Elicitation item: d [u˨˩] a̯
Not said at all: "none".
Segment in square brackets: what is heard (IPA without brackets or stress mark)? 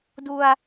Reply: u˧